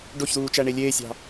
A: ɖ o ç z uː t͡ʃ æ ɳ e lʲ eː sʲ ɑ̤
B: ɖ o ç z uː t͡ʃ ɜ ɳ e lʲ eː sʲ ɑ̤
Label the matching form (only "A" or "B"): A